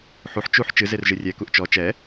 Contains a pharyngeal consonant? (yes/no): yes